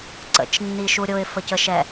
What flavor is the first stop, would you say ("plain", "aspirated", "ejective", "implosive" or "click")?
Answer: click